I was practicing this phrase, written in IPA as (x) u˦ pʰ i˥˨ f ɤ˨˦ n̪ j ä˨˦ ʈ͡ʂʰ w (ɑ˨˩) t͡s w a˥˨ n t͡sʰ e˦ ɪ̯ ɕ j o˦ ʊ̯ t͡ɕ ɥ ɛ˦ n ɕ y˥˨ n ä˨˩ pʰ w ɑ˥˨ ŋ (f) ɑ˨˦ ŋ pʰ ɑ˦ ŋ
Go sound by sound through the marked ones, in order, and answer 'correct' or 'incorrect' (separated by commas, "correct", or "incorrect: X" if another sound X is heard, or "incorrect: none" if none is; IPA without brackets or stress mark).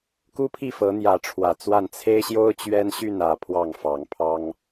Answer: incorrect: k, incorrect: ä˨˩, correct